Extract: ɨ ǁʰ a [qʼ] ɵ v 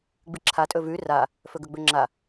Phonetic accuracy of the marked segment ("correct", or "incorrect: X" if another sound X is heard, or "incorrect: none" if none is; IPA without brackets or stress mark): incorrect: tʼ